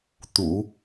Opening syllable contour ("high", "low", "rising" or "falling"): low